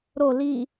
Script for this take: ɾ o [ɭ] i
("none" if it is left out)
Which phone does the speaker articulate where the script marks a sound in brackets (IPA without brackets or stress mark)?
l